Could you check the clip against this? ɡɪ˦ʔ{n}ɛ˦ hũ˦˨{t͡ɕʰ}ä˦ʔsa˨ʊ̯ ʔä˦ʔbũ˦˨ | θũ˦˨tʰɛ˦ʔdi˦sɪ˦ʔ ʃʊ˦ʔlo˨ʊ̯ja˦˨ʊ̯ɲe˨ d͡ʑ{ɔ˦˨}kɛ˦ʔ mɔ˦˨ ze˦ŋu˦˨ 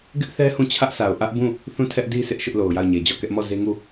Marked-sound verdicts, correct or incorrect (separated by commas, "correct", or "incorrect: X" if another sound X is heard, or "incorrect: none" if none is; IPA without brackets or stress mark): incorrect: θ, correct, correct